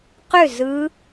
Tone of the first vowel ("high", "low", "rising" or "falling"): falling